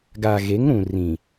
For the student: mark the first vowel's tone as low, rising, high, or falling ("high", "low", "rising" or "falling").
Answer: low